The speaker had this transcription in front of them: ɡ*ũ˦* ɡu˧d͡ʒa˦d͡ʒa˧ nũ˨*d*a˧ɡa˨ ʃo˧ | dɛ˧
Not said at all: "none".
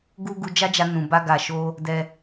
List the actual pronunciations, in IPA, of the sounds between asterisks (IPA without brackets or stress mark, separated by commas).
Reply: u˦, b